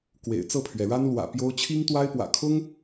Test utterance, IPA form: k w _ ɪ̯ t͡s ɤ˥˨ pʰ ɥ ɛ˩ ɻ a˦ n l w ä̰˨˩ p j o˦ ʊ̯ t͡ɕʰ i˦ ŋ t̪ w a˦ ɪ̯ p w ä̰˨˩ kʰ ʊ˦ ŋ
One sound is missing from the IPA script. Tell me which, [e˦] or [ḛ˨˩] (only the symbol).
ḛ˨˩